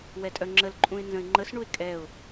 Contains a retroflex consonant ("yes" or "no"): yes